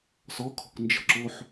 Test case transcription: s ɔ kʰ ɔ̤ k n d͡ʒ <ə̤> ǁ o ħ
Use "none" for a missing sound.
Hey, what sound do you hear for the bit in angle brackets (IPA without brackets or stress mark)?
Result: ə̤